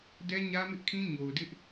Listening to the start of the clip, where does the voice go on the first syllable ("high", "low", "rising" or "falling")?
high